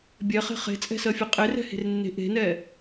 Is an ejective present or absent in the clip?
present